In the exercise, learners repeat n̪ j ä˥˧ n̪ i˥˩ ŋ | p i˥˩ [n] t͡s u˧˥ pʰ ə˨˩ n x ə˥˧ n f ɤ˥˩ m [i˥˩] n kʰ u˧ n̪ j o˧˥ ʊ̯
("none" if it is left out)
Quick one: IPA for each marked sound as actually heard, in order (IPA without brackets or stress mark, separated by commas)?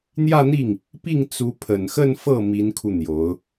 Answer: ŋ, i˧˥